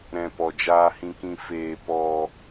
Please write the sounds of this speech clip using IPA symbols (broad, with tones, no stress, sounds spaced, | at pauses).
ɾ ɛ̃˨ p ɔ˨ d͡ʒ aː˧ h ĩ˧ k ĩ˧ f eː˧ p ɔ˧